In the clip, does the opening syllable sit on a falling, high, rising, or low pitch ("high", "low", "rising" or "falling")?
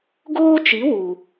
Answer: high